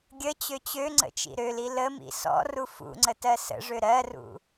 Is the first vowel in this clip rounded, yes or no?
no